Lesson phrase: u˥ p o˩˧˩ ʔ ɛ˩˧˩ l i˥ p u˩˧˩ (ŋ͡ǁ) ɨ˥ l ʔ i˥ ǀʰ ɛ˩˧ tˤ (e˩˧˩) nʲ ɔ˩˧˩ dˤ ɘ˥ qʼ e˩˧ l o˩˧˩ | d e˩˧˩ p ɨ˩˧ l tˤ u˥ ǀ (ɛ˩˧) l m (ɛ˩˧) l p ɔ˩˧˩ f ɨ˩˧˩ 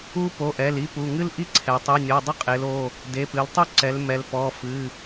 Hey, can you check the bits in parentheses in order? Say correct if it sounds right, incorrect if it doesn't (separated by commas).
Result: incorrect, incorrect, correct, correct